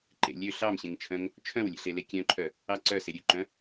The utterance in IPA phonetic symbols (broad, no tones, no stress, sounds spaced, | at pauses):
ǃ ḛ lʲ ø ɬ ɑ m ɕ ẽ ŋ t͡ʃʰ œ̃ ŋ | t͡ʃʰ œ̃ w lʲ ḛ ɬ e l e kʲ œ̃ ǃʰ œ | ɑ ǀ œ s e ɾʲ ʉ ǃ œ̃